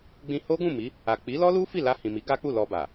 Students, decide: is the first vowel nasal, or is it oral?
nasal